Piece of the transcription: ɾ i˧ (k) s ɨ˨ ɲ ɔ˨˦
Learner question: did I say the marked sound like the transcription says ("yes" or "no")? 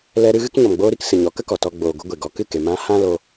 yes